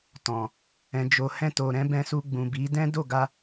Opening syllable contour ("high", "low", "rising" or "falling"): low